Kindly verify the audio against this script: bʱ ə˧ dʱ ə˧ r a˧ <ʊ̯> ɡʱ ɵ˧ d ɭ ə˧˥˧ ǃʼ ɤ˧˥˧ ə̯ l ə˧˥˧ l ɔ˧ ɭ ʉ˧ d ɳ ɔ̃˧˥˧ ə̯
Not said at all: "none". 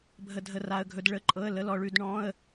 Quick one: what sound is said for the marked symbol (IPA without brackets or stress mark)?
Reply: ə̯